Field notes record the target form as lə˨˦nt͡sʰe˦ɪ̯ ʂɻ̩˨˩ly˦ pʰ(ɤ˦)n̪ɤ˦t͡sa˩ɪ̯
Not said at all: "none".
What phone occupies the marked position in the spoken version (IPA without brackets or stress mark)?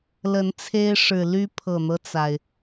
ɤ˨˩